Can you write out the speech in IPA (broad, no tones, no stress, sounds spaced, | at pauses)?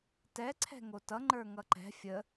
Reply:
t ɛ ǀʰ ɛ̤ ŋ o t ʌ ŋ͡ǃ ə˞ ŋ ʌ ǃ ɛ̤ fʲ ə